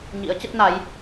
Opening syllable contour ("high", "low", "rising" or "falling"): rising